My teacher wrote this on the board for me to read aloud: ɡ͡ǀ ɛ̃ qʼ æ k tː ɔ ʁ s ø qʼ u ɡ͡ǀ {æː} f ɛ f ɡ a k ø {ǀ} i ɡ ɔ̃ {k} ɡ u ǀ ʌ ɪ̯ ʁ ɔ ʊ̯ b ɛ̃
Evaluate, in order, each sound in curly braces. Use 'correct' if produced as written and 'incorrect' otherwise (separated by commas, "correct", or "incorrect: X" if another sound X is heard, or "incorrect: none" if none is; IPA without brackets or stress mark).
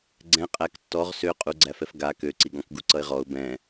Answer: incorrect: æ, correct, correct